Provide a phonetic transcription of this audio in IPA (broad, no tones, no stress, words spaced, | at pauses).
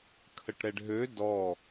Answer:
kʰəʈɾɛɖɦø dɔ